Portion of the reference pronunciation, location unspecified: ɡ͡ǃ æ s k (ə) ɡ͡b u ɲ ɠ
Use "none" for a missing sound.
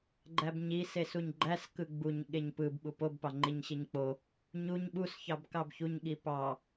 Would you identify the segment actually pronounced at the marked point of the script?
ɯ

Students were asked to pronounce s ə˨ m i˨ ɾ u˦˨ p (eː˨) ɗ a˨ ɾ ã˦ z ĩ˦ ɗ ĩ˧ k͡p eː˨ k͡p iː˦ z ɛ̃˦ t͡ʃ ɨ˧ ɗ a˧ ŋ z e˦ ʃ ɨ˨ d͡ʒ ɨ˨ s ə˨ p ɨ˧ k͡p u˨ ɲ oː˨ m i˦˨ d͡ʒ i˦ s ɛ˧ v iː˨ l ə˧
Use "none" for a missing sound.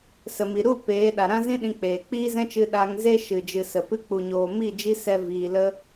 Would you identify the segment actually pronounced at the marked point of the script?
eː˨˦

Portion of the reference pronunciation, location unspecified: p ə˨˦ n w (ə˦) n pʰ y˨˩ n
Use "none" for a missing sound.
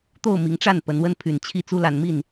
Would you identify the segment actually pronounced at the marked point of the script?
ə˦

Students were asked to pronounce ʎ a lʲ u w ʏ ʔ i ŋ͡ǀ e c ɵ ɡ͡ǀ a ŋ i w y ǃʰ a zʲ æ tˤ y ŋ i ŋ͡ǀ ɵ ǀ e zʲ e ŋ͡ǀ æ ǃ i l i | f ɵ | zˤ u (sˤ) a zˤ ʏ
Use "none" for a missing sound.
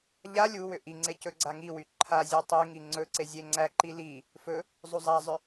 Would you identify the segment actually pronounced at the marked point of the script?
zˤ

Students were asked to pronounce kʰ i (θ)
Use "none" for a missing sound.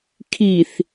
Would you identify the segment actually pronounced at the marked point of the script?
θ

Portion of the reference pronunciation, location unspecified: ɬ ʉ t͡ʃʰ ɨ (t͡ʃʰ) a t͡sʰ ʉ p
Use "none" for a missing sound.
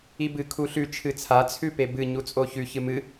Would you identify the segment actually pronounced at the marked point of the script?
t͡sʰ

